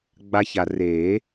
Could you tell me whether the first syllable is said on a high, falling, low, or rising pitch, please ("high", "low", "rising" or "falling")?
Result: high